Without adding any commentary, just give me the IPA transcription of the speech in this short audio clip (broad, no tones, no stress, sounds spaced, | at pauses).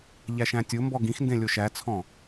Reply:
ʎ æ ʃ æ̃ tʲ o m b ɔ ɡ ĩ x n d ẽ lʲ o ʃ æ t͡sʰ ɔ̃